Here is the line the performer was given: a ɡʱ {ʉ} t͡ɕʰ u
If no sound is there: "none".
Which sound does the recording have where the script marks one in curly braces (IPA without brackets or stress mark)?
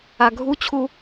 u